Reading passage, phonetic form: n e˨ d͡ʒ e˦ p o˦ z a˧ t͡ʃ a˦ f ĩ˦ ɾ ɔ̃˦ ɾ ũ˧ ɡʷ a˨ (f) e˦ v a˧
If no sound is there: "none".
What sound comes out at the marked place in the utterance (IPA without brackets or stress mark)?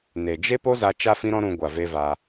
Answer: v